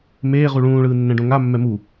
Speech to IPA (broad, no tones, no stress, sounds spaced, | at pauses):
m eː ʁ u ɭ ũː ɭ ɯː nː ɛ̃ ɖ õ ŋ a mː ɛ m u